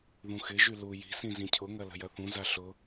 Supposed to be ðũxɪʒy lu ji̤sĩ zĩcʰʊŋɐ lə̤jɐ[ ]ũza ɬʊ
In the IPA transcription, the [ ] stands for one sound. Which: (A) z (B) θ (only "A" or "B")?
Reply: B